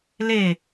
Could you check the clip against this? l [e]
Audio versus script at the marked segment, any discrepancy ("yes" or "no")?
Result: no